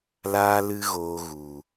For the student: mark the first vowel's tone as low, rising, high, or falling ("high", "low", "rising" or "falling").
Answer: high